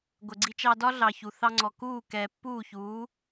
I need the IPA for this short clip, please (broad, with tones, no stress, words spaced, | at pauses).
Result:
ɡʷə˩ɡ͡ǀi˧t͡ʃɑ˧dɒ˥ ɮɑ˩ çu˩ θɑ˧ŋ͡ǀɔ˩ kuː˥˩kɛː˩pːuː˥˩çuː˩˥